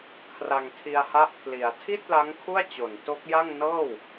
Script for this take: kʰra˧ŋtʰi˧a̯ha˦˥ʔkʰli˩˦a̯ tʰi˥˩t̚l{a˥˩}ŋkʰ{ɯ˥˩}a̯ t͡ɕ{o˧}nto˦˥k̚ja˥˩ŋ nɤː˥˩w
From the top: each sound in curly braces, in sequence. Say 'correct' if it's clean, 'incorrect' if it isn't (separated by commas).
incorrect, incorrect, incorrect